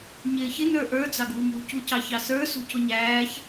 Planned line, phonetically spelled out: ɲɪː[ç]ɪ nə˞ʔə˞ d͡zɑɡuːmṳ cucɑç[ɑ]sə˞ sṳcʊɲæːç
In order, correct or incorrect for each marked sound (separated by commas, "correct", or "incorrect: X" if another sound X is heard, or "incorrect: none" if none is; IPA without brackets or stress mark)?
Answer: correct, correct